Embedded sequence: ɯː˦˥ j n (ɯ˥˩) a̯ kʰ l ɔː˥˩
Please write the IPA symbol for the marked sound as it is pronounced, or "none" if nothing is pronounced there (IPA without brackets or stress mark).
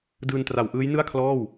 ɯ˥˩